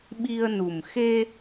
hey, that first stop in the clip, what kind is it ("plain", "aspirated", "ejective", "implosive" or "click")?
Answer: implosive